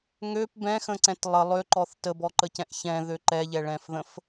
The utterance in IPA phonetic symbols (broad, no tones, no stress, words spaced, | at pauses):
ŋøp bɛ̃xə̃ǀɛ̃t lˠə lˠøǃɔθ təbɔǃəcɛ̃ʔ çɛ̃ðø ǃɛʎɛɭɛ̃fðə̃f